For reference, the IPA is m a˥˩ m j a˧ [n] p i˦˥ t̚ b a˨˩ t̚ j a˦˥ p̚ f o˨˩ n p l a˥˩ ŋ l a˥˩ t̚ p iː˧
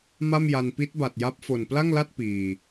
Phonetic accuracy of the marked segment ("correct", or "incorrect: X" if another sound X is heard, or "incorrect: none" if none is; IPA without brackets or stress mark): correct